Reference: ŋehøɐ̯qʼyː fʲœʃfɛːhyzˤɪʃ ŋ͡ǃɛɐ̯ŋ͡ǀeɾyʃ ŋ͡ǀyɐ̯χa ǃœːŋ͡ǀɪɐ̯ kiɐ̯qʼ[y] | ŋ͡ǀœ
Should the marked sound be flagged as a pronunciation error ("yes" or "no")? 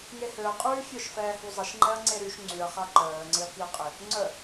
yes